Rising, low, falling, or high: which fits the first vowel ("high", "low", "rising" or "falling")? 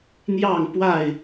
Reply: falling